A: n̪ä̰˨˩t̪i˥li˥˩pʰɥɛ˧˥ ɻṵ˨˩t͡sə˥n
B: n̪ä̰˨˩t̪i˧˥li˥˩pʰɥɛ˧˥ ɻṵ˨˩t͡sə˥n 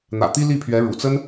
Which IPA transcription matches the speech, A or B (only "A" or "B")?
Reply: A